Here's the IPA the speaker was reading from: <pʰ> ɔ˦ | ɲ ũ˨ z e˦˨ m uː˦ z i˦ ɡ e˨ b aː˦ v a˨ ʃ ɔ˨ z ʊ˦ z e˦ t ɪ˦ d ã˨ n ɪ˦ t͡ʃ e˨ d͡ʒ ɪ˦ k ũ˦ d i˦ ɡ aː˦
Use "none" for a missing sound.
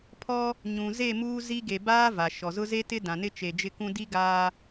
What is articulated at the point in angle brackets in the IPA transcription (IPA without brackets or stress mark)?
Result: pʰ